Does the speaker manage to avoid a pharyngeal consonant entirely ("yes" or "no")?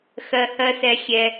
yes